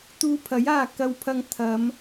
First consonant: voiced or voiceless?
voiceless